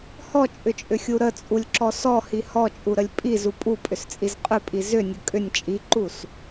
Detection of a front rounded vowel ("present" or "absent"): present